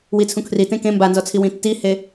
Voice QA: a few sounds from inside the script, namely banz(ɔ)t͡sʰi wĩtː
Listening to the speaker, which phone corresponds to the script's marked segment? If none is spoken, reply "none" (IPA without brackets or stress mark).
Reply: ɔ